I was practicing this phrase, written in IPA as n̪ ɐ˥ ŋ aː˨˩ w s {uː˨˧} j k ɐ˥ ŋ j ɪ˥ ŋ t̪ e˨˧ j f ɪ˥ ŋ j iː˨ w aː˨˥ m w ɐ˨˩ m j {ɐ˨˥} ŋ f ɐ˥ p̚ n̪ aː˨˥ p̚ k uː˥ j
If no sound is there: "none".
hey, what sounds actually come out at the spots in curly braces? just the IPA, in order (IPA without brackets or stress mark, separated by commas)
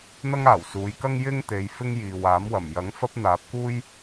uː˨˧, ɐ˨˥